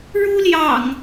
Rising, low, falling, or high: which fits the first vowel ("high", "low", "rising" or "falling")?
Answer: high